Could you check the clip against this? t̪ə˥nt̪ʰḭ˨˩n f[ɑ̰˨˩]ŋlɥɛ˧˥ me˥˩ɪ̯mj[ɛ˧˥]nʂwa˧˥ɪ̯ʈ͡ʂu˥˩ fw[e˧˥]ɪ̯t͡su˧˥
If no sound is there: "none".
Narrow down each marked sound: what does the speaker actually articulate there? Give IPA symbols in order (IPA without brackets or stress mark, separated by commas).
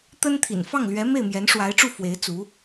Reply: ɑ˥˩, ɛ˧˥, e˧˥